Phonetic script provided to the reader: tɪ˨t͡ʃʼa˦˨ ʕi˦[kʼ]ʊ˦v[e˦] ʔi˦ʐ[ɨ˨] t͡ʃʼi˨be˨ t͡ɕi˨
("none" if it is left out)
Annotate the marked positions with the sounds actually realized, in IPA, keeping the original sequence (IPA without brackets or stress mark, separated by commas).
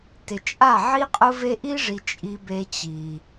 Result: qʼ, e˦, i˨